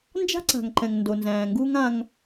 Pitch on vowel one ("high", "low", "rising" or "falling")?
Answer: high